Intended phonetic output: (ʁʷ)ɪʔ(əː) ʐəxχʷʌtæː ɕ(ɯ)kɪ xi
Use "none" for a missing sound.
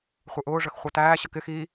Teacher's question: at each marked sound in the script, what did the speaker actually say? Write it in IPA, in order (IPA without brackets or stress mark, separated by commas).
χʷ, ʊː, ə